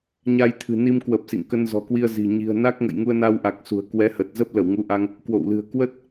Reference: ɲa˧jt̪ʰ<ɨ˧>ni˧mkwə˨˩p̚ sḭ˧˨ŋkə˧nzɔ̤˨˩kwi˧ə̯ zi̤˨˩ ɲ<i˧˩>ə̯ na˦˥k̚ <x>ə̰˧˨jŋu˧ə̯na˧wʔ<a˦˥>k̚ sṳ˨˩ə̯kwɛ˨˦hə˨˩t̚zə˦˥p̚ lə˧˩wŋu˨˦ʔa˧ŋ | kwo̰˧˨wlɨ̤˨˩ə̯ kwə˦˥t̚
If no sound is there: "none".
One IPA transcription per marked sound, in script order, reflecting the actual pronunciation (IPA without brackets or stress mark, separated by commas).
ɨ̤˨˩, i̤˨˩, ŋ, a˨˩